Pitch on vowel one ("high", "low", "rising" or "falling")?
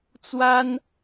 high